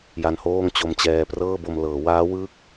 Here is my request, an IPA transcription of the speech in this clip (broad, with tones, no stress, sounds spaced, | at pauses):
j a˦˥ n h oː˥˩ ŋ t͡ɕ o˧ m t͡ɕ ɛː˧ p r ɤː˥˩ b o˧ m l ɤː˩˦ w aː˦˥ w ɯː˥˩ k̚